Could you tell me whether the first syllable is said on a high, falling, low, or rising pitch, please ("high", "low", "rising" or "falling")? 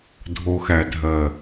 low